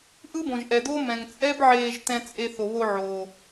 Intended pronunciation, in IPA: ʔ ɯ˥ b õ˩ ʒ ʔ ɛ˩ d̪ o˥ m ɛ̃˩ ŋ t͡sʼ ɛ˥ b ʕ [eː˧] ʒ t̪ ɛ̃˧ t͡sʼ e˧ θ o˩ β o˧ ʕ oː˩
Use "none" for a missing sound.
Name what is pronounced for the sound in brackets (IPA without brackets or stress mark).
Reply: eː˧